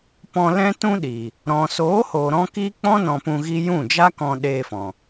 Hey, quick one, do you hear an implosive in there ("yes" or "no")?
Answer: yes